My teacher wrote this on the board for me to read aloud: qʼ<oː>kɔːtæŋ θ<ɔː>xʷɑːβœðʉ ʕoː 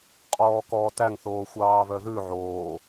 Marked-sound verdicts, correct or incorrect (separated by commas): incorrect, incorrect